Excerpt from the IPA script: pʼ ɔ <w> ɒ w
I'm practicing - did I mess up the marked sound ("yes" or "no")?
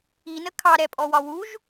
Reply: no